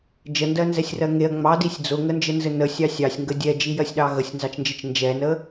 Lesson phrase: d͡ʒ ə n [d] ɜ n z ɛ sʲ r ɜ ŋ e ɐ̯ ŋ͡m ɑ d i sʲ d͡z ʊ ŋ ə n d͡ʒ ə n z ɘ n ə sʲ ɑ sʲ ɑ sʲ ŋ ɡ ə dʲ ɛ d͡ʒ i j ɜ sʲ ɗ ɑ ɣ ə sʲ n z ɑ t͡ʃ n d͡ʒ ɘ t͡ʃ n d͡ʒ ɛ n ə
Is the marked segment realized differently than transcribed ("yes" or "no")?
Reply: no